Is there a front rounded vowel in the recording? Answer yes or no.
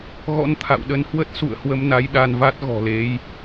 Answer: no